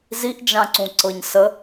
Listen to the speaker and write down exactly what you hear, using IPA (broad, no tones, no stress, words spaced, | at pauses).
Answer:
ziʔd͡ʒãǀũǀɤɲ sə